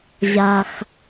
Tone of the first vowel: low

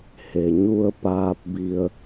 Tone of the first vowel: low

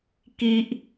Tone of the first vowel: high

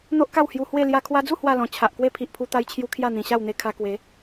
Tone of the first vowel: high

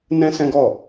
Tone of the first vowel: high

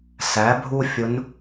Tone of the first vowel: rising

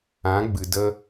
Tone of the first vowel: rising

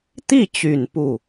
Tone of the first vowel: falling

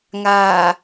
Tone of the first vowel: low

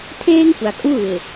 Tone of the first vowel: high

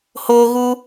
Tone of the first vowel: high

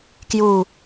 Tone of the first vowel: falling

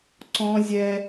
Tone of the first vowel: high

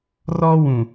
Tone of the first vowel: high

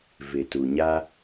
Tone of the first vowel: low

